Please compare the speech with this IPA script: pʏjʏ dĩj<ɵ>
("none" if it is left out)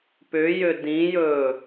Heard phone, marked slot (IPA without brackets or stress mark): ɵ